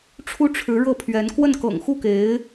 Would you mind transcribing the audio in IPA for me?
ʈ͡ʂʰ u˥ ʈ͡ʂʰ ɻ̩˧˥ ɻ ɤ˥˩ pʰ ɥ ɛ˧˥ n k w ə˥˩ n k ɤ̰˨˩ ŋ x u˥˩ k e˧˥ ɪ̯

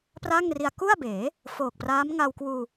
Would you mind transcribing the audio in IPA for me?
p r a˥˩ ŋ r i˧ a̯ k u˥˩ a̯ b eː˩˦ | f oː˨˩ k̚ p r aː˦˥ m ŋ a˧ w k w uː˧

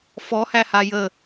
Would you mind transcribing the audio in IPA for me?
f ɔ h æ h a j ə

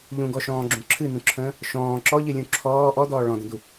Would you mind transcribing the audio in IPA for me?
ʎ ũ ɡ ɔ ʃ ɔ̃ː ɡ͡ǁ ũ ǁʰ ɨ n̪ ũ ǁʰ ə̃ː | ʃ ɔ̃ː ǁ ɔ ʎ ɨ lʲ ũ ǁʰ ɔː ʔ ɔ d̪ ɔː ɭ ɔ̃ d ə̃ d̪ u

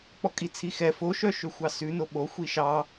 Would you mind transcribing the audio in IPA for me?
k͡p ɔ kʼ i t͡sʰ i x ɛ f o ʃ œ ʃ ø xʷ ɑ s ʉ n o ɓ o xʷ i ʃ ɑ

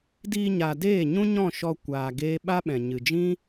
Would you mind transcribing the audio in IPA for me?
d iː˧ ɲ a˨ d eː˦˨ ɲ ũ˦ ɲ ɔ̃˦˨ ʃ ɔ˧ kʷ aː˨ ɡ eː˦ ɓ a˦ ɓ ɛ̃˨ ɲ ɨ˨ d͡ʒ ĩ˦

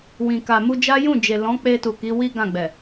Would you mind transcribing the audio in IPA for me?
w ĩ˨ k a˨ m u˧ d͡ʒ a˦ j ũ˦˨ d͡ʒ e˨ l ɔ̃˨˦ k͡p e˧ t u˨ k i˨˦ w i˦ ɡ ã˦˨ ɡ͡b ɛ˨

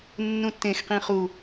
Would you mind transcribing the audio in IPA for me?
nː ũ tː ẽ x q ĩ χ u

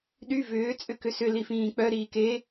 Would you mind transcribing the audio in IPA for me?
ɗ y v ʏː t͡sʼ ʏ k ʏ s ʏ l i f ĩː k͡p œ ɾ iː k e

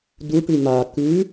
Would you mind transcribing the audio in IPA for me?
d u ʈ ʉ m a k ʉ

